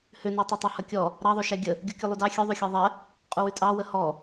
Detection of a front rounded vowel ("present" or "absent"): present